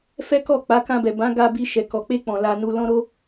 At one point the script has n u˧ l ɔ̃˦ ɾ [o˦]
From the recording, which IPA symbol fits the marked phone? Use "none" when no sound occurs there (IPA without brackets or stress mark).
o˦